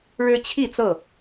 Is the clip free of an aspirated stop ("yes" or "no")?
no